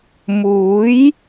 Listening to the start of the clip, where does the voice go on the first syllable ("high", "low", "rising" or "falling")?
rising